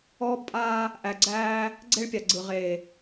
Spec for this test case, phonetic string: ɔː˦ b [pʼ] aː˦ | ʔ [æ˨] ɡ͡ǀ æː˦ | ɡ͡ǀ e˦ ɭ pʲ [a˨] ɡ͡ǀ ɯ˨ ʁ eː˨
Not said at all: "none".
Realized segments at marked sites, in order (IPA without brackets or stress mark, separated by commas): pʼ, æ˨, a˨